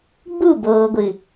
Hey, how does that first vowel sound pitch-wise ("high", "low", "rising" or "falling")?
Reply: falling